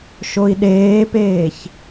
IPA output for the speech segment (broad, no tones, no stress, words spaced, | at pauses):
ʃoi̯ɗeːpeːç